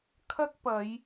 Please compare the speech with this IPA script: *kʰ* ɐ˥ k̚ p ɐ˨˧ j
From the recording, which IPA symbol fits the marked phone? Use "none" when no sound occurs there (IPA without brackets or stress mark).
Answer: kʰ